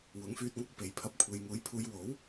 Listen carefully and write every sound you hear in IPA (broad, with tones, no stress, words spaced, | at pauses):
wʊ˨˥ŋfyː˧t̚ŋɐ˥k̚ pe˨˧jpʰɐ˧p̚ kʷʰe˨˧j ŋuː˨˥jpʰuː˨˧jwo˨˥w